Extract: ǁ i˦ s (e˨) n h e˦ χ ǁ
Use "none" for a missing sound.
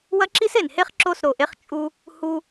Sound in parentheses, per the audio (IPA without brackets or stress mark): e˨